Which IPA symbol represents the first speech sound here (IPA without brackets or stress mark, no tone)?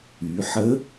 y